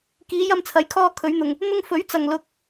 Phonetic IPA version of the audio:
k iː˨˧ j ɐ˧ m t͡sʰ ɐ˨˥ j kʰ ɔː˧ kʰ ɵ˨˧ ɥ n̪ ʊ˨ ŋ | n̪ ʊ˧ ŋ f ɵ˨˥ ɥ t͡s ɐ˨ ŋ l ʊ˧ k̚

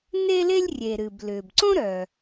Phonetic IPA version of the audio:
n e˥ l e˥ lʲ rʲ e˩ ɾ ɨ˩ b l ʏː˩ b ǀ õ˥ ɾ œ˩

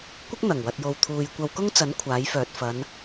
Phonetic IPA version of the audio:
kʷ ɪ˥ k̚ n̪ ɐ˨˩ ŋ w ɐ˨ t̚ j o˨ w t̪ʰ uː˨ j kʷ ɐ˧ w k ʊ˥ ŋ t͡s ɐ˨˥ n kʷʰ aː˨˥ j f œː˨ t̚ f ɐ˨˧ n

